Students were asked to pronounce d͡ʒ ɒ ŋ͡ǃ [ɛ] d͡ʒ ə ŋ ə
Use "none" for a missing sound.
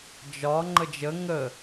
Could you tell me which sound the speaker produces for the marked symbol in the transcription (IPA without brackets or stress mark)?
ə